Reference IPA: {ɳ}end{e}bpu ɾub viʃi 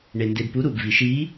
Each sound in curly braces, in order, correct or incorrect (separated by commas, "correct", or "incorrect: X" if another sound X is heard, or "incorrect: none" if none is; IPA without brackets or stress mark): correct, correct